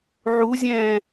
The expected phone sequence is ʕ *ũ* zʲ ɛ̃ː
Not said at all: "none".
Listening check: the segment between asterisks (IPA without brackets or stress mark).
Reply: u